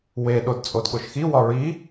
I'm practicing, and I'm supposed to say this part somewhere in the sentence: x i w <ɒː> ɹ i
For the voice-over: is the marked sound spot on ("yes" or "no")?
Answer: no